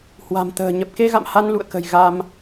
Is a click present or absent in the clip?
absent